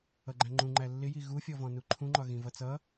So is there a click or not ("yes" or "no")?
yes